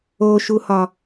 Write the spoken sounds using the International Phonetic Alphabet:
o ʃ u h ɒ

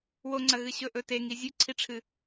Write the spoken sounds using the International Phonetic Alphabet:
w o ŋ͡ǀ ɐ ɣ ɨ ɕ ɵ ʔ ɵ t e ŋ i zʲ ʉ ǀʰ i ʈ͡ʂʰ ɨ

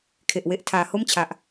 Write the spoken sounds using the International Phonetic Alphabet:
kʰ e˨˩ ʔ w e˦˥ ʔ tʰ aː˩˦ h o˥˩ m t͡ɕʰ a˨˩ ʔ

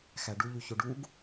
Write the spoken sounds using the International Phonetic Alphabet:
x æ ɖ u ʎ y ç o ɖ u ɡ

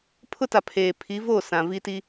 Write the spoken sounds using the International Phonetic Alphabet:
pʰ ʊ˦ t a˨ pʰ eː˨ pʰ i˨˦ v oː˦˨ s ã˨ v i˦ t i˦

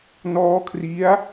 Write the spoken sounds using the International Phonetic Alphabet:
n ɔː˦˥ kʰ r i˦˥ a̯

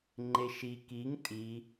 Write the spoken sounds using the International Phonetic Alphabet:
ŋ͡ǃ e ʃ i k i ŋ tʼ i

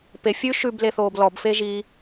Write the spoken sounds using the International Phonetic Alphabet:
p e fʲ ʉ ʃ ʉ b l e θ oː b l ɔ b f e ʒ iː

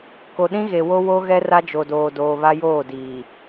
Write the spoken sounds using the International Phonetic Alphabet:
k o˨ ɗ ĩ˦ ɣ e˨ w o˦ w o˦ ɣ ɛ˦ r a˦ d͡ʒ o˨ d oː˨ d oː˨ β a˦ j oː˦˨ d iː˨

